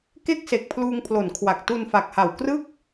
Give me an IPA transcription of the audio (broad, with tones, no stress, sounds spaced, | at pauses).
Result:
k e˥˩ k̚ s e˨˩ k̚ pʰ l uː˧ ŋ pʰ l o˩˦ n kʰ w a˨˩ k̚ t u˧ n f a˨˩ k̚ h a˨˩ w k r ɯ˥˩ k̚